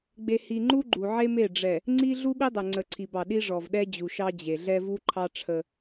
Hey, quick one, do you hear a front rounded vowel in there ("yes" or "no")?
no